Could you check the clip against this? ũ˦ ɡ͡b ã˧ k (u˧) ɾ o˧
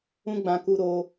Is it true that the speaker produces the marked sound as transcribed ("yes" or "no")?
yes